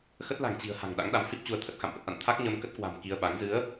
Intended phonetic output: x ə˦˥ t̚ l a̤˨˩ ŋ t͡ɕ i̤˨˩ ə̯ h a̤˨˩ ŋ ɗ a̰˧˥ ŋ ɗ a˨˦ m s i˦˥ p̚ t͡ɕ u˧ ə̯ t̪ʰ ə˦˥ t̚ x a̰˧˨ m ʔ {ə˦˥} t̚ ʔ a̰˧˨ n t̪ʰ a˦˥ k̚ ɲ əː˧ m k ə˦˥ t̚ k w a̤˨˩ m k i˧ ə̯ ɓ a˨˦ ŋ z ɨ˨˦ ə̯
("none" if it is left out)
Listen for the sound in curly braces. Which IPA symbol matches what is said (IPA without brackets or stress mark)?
ə˦˥